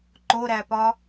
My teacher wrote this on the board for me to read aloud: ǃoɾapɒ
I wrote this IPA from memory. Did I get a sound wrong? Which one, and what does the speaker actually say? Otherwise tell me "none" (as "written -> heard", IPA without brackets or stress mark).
a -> æ